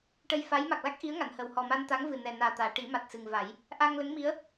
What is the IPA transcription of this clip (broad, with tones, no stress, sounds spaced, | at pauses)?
ʈ ə˧ j f a˧˥ j m a˨˩ k̚ l a˦˥ k̚ ʔ i˧˥ ə̯ ŋ a˨˩˨ n h ə˨˩ w h ɔ˨˩ m a˧ n t̪ a˧˥ ŋ v ɨ˨˩ n ɛ˨˩ n aː˨˩ t̪ aː˨˩˨ ʈ i˨˩˦ m a˨˩ t̚ s ɨ˨˩ ŋ v a˨˩˦ j | ʔ a˧ ŋ l ə˧˥ ŋ m i˧˥ ə̯